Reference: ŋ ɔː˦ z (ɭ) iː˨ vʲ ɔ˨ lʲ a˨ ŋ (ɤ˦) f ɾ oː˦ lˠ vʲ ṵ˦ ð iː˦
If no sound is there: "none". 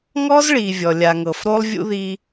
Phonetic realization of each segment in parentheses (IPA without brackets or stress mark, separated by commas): ɭ, ɤ˨